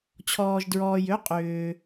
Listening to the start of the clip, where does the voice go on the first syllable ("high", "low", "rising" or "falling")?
low